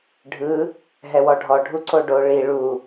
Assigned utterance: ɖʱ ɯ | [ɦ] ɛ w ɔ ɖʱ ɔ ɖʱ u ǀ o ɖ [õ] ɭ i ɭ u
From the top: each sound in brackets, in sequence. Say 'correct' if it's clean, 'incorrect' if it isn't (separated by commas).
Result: correct, incorrect